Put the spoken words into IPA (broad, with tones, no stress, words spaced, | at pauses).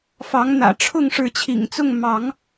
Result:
fɑ˨˦ŋn̪ä̰˨˩ʈ͡ʂʰʊ˥˨ŋ ʂɻ̩˨˦t͡ɕʰḭ˨˩ŋt͡sʊ˥˨ŋ mɑ˨˦ŋ